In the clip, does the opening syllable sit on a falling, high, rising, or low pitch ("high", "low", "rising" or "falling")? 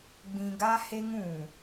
low